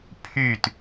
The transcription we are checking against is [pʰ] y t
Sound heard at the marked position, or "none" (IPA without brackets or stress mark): pʰ